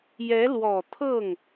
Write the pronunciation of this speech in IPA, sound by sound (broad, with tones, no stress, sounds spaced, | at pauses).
j ɛ˧˥ l w ɔ˨˩ t̪ʰ ɤ˥˩ ŋ